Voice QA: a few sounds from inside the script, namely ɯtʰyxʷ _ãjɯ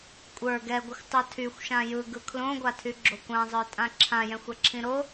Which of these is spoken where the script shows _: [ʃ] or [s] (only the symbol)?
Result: ʃ